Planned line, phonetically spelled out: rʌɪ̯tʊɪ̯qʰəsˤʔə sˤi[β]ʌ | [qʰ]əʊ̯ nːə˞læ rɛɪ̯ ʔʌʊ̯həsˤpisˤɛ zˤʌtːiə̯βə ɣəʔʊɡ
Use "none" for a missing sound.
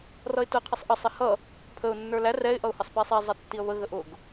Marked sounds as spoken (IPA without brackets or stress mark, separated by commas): h, pʰ